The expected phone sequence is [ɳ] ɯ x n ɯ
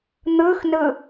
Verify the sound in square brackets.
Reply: incorrect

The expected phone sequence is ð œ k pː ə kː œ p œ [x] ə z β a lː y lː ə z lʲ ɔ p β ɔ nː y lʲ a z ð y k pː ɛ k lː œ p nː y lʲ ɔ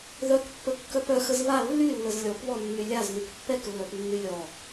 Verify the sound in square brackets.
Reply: correct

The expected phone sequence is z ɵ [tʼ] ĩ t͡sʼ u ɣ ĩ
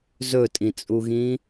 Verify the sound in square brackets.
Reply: correct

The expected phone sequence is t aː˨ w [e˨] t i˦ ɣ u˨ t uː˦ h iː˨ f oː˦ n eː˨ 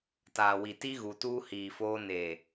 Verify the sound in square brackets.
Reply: incorrect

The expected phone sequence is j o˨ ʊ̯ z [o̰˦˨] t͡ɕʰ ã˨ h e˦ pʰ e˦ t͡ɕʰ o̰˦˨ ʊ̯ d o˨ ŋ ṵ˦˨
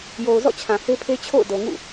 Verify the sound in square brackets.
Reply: incorrect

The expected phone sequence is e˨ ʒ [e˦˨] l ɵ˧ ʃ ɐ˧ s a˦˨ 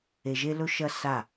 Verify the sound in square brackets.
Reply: incorrect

